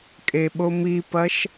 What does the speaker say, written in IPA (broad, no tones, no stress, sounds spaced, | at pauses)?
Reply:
kʼ e ɓ o m i p ɐ ʃ